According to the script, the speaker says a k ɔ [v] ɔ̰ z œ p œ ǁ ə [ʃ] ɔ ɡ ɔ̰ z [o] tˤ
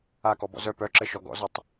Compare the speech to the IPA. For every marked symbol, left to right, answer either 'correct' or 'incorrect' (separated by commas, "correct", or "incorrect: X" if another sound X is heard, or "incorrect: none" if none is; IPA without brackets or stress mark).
incorrect: b, correct, incorrect: ɔ